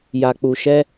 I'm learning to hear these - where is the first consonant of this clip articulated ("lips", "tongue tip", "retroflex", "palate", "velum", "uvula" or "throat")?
palate